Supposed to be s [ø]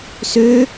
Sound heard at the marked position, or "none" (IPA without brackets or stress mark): ø